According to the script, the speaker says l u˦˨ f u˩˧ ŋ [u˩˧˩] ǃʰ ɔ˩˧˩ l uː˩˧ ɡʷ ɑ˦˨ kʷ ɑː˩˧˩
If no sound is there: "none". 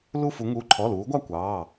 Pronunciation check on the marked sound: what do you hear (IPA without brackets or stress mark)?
u˩˧˩